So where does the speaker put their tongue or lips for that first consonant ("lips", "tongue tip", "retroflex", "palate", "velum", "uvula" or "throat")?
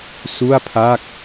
tongue tip